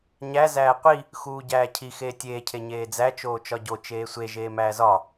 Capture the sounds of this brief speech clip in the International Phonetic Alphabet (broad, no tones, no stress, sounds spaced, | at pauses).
ɲ æ z æː qʷ i | x uː ɟ æː cʰ i x eː tʲ eː cʰ e ɲ eː d͡z æ t͡ʃ oː t͡ʃ ɒ ɟ o t͡ʃ eː sʷ e ʒ eː m æː z ɒ